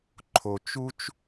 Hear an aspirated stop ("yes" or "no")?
yes